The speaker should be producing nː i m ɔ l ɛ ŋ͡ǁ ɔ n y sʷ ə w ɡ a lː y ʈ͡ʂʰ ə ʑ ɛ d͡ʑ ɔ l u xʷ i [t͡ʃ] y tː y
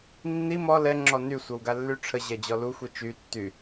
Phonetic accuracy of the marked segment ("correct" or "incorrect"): correct